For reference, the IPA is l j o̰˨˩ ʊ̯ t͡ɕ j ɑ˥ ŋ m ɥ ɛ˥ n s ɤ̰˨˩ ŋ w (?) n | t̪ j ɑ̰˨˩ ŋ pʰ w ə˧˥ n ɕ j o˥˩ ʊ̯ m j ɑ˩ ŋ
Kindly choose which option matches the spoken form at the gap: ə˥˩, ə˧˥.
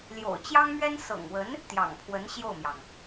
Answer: ə˧˥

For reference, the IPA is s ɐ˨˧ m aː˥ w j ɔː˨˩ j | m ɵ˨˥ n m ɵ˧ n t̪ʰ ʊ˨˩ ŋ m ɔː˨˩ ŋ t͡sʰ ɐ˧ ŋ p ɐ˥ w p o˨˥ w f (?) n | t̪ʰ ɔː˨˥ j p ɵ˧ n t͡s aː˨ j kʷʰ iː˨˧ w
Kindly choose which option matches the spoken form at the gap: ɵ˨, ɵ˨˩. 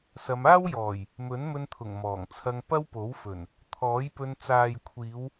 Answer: ɵ˨˩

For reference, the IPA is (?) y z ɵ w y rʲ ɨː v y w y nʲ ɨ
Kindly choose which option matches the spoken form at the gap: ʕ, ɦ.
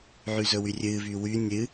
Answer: ʕ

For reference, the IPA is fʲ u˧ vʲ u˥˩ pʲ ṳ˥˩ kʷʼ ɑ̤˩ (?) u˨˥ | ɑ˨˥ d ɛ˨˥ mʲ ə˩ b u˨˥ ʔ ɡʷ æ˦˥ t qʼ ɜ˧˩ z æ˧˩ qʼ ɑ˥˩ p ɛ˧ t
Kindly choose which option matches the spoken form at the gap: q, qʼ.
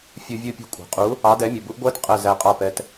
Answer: qʼ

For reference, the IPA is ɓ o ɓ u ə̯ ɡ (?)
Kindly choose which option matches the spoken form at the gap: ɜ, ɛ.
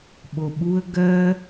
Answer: ɜ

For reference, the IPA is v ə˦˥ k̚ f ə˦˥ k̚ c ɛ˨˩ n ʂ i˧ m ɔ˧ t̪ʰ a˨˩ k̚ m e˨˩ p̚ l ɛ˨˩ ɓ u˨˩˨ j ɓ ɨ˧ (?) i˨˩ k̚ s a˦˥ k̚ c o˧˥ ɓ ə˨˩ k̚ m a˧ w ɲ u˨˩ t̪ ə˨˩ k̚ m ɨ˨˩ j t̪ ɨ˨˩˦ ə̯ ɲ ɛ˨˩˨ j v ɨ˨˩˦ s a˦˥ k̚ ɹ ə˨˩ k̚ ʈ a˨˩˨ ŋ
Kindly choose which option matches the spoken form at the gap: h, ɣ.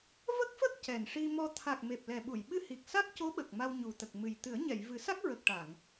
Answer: h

